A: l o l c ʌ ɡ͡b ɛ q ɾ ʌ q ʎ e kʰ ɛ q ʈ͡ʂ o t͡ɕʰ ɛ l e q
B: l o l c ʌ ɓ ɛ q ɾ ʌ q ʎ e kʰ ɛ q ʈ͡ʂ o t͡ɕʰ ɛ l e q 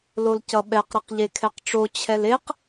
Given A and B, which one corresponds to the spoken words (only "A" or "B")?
B